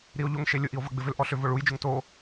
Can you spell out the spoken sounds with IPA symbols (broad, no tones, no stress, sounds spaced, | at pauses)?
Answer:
ɾ i o̯ ʎ o ŋ ʃ e lʲ ʊ ʔ i o̯ v ɐ ɡ͡b ɪ v ʏ l ʔ ɔ ɬ ʏ v ʊ ɭ u j d͡ʒ ʊ ŋ t o